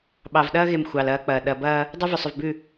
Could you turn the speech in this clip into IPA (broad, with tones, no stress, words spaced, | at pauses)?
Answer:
ɓɑ˨vɗɐː˦ɣe˨m xʷɑ˨lɐː˦k͡pɐː˨ ɗɐ˨bɐː˦ | dˤu˦vʏ˨sˤʏ˨vbʉ˦˨